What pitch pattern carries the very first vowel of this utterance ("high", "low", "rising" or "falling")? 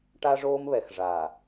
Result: high